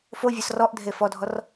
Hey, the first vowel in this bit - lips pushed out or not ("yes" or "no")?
yes